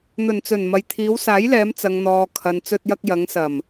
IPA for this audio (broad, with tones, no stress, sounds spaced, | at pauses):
n̪ ɵ˨˩ n t͡s ɵ˨˩ n m ɐ˨ j t̪ʰ iː˨˧ w s aː˨˥ j l ɛː˨˧ m t͡s ɐ˨ ŋ n̪ ɔː˨ kʰ ɐ˨ n t͡s ɵ˧ t̚ j ɐ˧ k̚ j ɐ˨˧ ŋ s ɐ˨˩ m